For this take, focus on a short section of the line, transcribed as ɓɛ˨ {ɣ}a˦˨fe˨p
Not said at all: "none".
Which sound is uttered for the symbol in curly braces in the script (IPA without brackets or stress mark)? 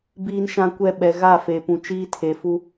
ɣ